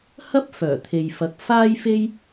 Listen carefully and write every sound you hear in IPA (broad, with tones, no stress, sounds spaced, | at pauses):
h ɐ˥ p̚ f œː˨˩ t̪ʰ e˨ j f ɐ˨˥ k̚ f aː˥ j f e˥ j